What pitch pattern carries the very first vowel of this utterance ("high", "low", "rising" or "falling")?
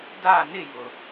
falling